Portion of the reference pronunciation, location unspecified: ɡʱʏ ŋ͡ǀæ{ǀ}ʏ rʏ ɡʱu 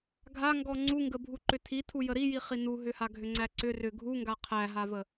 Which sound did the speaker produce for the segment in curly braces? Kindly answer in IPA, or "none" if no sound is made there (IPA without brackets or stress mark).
ǀ